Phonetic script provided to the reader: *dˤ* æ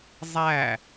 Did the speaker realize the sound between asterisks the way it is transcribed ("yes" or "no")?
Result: no